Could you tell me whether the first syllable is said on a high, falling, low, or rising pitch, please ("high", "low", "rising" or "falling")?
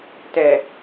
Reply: low